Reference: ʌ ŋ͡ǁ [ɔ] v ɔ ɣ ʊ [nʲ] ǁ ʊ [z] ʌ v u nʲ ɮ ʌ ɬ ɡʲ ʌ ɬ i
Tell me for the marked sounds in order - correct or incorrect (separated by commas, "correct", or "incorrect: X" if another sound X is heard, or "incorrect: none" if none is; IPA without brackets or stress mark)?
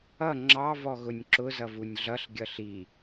incorrect: ɑ, correct, correct